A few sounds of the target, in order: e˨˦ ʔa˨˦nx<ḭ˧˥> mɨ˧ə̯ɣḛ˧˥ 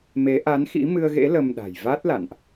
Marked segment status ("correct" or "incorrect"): correct